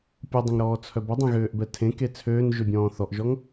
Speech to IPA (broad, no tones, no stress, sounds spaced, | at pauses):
pʲ u dˤ ə̃ ŋ ɾ ɔː t͡sʰ œ b ə dˤ ẽ ɣ øː ʔ b ɛ tʰ ẽ k e t͡sʰ øː n ʒ ø bʲ ɔ̃ː θ ɔ ʔ ʒ ɔ ŋ